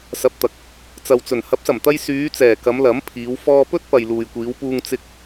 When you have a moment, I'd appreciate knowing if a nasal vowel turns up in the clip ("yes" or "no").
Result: no